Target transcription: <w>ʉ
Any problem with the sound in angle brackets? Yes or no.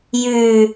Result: yes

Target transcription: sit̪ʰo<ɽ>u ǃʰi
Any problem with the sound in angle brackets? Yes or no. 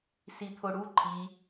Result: no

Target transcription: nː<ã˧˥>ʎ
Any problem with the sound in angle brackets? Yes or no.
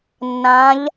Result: no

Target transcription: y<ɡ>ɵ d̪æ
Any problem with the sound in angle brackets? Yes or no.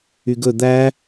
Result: no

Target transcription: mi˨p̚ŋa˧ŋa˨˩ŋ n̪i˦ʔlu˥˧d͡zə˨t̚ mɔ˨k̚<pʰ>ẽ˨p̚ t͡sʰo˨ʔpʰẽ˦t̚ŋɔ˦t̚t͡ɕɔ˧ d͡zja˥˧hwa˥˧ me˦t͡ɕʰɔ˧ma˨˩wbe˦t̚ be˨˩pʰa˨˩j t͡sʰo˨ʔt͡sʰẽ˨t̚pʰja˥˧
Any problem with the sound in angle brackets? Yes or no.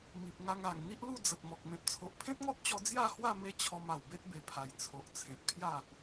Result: yes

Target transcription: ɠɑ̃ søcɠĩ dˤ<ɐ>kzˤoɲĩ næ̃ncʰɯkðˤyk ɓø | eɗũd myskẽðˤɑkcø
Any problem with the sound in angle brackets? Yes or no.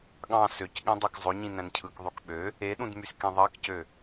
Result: yes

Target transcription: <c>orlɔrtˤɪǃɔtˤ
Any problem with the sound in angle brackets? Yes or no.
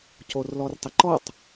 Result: no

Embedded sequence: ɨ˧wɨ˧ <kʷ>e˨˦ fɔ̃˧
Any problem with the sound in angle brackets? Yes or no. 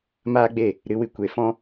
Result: no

